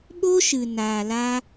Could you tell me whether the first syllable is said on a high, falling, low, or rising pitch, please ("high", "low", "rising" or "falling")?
high